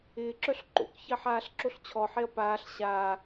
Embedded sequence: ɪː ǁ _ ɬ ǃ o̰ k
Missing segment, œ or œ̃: œ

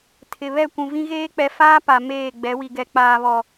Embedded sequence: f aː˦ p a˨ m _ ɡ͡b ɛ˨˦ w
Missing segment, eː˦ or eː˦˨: eː˦˨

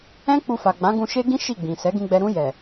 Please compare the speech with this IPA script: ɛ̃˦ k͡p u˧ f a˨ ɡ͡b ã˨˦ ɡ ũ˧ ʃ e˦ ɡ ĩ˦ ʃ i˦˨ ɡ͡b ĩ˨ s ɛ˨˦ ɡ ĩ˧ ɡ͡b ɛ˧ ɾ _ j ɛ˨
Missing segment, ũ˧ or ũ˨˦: ũ˧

